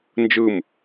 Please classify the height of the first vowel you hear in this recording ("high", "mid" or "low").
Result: high